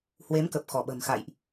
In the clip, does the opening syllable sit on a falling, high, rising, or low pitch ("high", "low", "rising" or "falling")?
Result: rising